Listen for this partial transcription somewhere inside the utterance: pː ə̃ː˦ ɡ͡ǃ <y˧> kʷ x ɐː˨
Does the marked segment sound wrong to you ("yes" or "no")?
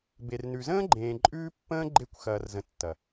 yes